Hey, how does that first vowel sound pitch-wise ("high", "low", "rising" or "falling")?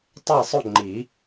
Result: falling